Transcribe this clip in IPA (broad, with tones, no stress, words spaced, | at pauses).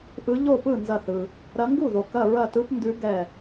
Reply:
ʔɯ˨˦ ʎo˥˩pɯ˥˩ nzɐ˧˩θɯ˩ | ɾɐ˨˦ŋɡu˥˩ðo˩ kɐ˧˩ɹɐ˧˩tɯ˨˦pndʉ˨˦ ɡɛ˧˩